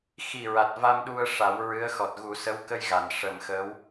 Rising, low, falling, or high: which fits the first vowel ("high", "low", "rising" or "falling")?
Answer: low